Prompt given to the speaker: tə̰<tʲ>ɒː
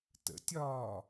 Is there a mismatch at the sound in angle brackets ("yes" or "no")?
no